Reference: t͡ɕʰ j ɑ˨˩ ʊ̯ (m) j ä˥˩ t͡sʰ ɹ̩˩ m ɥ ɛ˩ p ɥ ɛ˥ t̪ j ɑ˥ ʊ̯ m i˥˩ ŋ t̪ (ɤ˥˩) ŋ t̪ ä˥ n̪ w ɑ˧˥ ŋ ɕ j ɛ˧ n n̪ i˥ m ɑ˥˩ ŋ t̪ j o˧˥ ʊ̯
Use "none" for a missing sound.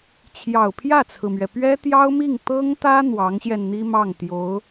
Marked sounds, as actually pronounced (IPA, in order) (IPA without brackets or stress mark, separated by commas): pʰ, ɤ˥